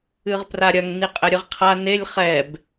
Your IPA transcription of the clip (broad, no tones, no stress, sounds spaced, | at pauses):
ɨ ʁ p r a ɾʲ ɐ ŋ n i qʼ ɛ ɾʲ ɨ ʁ qʰ a n e lʲ χ ɛ b